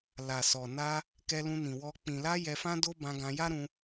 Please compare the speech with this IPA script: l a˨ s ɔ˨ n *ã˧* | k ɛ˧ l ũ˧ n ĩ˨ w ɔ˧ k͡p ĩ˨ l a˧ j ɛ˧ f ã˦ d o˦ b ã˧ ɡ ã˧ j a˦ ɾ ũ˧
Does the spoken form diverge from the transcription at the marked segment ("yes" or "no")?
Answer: yes